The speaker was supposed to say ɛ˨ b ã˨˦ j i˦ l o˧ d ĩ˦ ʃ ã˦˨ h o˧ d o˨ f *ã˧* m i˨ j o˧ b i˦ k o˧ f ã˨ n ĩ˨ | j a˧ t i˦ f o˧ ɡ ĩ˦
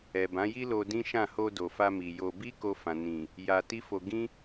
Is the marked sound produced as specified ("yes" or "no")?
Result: no